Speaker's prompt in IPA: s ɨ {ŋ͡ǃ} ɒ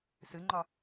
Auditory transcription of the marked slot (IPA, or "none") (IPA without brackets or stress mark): ŋ͡ǃ